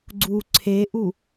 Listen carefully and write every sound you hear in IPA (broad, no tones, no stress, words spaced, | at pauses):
ɡ͡ǀu ǀʰeʔu